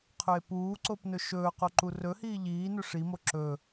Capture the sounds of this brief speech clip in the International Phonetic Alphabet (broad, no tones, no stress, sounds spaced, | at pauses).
qʰ ɵ e̯ p uː ǀ o p n ɵ ʃ ɵː q o ǃ u r ɵ h iː ʎ iː n ɵ ʂ i m o ǁ ɵ